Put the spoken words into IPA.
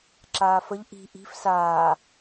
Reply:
ǁ aː f ə ʎ ʔ i̤ ʔ i̤ f s aː

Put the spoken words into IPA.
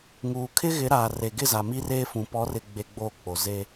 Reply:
ŋ uː˨ kʰ ɪ˦ ɣ ɪ˨˦ ɾ aː˨ r e˨ ɡ ɪ˦˨ z a˨ m i˦ r eː˦ f ũ˨ p ɔ˨˦ r ɪ˨ ɡ͡b e˨ ɡ͡b oː˦ k͡p o˨ z eː˦

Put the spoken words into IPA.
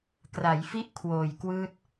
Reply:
k r a˩˦ j f i˥˩ ʔ kʰ w oː˨˩ j k w ɯː˥˩ t̚

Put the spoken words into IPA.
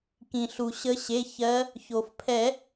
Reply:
k ĩ˩ ɬ u˩ ɕ ə˨˦ ɕ e˩˧˩ ç ɜ˨˦ | ç o˩ f pʰ ɛ˨˩˦

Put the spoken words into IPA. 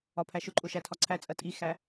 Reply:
ɒ pʰ æ ʃ ʊ ǃʼ ʊ ʃ æ tʰ ɒ ǀʰ æ t͡sʼ ɜ tʼ i x æ

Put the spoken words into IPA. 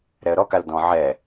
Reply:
ɾ ɛ ə̯ ɾ ɔ k a l d ɔ̃ ʕ ɛ

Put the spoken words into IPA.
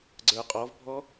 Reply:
ɡ͡ǀ ə˞ qʼ ɔ v bʱ ɔ

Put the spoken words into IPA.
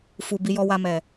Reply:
f u˨ b i˨ j ɔ˨ w a˨ m ɛ˨

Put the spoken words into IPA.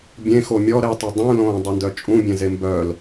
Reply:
bʲ ẽ x o mʲ ɔ ɾ e tˤ o dˤ ũ l õː dˤ ø n d œ t͡ʃʼ ũ bʲ ẽ z e m b œ l

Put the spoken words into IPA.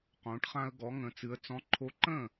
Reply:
q õ˩˧ ʈ χ ã˧ ə̯ ɡ ɔ˩˧ ŋ ə̃˩˧ t͡s ɨ˩˧ ə̯ t͡s ɔ̃˨˥ ǃʰ o˧ ǃ ə̃˥˩

